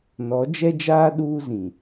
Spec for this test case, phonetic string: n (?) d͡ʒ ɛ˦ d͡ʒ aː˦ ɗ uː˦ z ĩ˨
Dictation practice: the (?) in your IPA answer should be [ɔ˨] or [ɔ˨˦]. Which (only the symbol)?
ɔ˨˦